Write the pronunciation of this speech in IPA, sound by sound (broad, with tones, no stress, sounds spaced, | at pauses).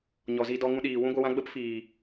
ɲ ɔ˨ z i˧ d ɔ˧ ŋ ũ˧ ɗ iː˨ w ũ˦ ɡʷ ə˧ w ã˦ ɡ͡b ə˦ p f iː˨